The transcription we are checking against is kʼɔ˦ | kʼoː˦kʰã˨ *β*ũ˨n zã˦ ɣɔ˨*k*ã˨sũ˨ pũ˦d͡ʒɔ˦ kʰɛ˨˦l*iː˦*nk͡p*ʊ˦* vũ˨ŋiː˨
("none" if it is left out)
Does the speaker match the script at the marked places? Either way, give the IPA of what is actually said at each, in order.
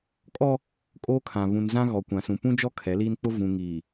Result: β, kʷ, iː˦, ʊ˦

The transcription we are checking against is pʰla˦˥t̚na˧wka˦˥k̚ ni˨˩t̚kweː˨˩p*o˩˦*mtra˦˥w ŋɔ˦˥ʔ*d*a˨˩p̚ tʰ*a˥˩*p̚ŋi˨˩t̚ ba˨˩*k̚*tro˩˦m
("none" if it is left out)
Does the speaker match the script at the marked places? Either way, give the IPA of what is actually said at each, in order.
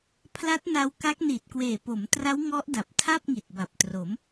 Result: o˩˦, d, a˥˩, p̚

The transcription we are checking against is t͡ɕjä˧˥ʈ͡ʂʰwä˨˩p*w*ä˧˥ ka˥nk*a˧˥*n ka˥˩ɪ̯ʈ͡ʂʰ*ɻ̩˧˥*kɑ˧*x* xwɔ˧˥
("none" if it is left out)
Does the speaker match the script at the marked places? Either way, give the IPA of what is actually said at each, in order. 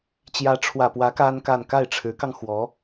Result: w, a˥˧, ɻ̩˧˥, ŋ

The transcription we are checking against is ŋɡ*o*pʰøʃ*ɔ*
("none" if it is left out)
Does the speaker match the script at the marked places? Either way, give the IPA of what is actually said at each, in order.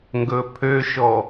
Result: ɵ, ɔ

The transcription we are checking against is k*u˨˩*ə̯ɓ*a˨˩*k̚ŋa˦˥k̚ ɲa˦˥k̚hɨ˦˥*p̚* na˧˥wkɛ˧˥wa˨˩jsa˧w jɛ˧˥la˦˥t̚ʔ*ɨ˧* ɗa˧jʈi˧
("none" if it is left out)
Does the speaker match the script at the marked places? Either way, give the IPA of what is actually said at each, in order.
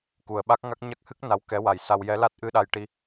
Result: u˨˩, a˦˥, k̚, ɨ˧

